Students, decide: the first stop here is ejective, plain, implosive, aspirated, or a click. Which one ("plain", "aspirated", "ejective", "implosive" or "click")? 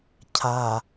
aspirated